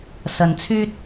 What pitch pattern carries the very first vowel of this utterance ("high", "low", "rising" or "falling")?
low